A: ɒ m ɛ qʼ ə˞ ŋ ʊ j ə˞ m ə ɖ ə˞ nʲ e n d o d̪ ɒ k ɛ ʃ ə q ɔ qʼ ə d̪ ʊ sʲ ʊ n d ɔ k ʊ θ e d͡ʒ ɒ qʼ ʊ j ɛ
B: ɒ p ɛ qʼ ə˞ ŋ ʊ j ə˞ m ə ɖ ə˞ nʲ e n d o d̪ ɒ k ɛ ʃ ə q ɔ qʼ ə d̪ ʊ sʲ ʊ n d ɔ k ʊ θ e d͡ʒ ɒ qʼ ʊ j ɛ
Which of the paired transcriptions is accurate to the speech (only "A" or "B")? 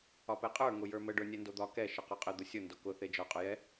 B